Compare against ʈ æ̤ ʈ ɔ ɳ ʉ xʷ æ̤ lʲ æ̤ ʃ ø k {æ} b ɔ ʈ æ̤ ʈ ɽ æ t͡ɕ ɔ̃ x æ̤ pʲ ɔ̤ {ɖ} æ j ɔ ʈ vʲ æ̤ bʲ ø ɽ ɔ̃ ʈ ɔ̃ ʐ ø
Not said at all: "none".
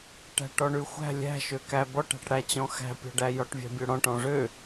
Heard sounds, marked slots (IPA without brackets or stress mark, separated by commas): æ, ɖ